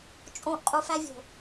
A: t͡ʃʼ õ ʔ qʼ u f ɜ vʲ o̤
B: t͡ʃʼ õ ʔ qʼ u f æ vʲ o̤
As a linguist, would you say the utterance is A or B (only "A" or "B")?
B